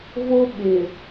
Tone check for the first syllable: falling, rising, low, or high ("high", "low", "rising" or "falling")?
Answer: high